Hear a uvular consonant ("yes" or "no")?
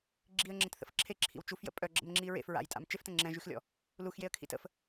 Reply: no